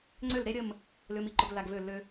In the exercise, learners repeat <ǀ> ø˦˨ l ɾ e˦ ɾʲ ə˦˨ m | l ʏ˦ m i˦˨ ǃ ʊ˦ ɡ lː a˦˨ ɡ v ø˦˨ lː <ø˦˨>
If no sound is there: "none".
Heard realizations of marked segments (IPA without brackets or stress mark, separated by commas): ŋ͡ǀ, ø˦